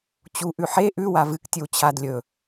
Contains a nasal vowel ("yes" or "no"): no